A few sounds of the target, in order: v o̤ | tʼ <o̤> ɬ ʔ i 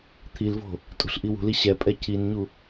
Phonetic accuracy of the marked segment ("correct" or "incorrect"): incorrect